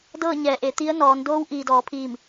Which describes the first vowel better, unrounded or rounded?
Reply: unrounded